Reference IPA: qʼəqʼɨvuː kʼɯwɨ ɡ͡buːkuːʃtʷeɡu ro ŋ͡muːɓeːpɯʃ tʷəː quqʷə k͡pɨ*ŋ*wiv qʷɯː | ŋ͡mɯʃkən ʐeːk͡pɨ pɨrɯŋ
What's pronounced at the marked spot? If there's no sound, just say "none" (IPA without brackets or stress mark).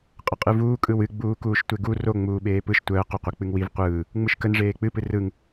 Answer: ŋ